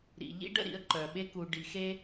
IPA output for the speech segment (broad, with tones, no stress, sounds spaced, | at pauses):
ɾ ḭ˨ ʎ ḭ˦ ɖ ə̰˦˨ ɾ ḭ˨˦ ə̯ ǃ œ˨ ɓ e˦ k u˨ ɖ i˨ x e˦